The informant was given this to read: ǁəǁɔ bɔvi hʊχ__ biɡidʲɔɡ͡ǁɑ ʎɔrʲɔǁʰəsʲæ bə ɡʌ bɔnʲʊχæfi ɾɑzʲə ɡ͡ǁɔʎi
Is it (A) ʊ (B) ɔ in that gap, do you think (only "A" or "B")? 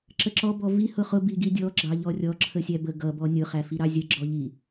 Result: A